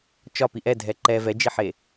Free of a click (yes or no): no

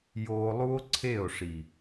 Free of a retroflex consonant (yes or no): no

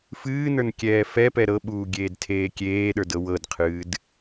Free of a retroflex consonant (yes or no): yes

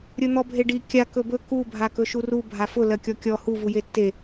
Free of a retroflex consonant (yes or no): no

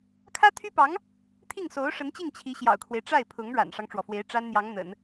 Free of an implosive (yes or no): yes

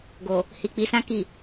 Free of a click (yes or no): yes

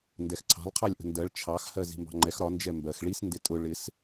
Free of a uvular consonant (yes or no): no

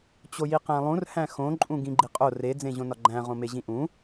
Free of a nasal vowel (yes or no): no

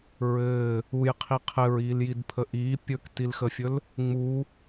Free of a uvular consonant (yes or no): no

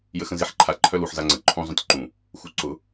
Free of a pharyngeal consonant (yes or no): no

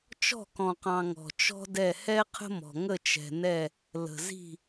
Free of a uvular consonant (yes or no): no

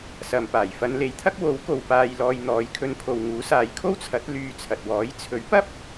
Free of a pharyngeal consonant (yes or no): yes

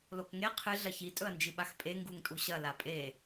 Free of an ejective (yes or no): no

